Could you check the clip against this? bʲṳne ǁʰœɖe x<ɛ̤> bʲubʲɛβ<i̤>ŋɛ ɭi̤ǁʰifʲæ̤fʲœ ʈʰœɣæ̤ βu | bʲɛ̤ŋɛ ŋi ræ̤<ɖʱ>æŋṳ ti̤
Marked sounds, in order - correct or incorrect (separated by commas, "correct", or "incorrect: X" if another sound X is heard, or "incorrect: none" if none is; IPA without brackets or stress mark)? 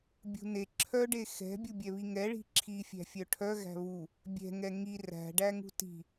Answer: correct, incorrect: i, incorrect: ɖ